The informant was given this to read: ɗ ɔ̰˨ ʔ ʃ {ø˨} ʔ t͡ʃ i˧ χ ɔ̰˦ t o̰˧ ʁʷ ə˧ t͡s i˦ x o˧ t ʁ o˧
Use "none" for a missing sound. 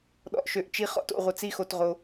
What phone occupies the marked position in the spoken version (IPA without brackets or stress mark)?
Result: ø˨